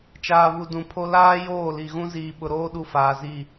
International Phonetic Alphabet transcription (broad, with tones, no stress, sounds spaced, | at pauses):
t͡ʃ aː˨ β u˨ d ũ˨ pʰ o˦ l aː˦ j oː˦˨ l i˨ ɣ ũ˦ z iː˨ ɓ ʊ˨ ɾ oː˦ ɗ u˦ f aː˨ z i˦˨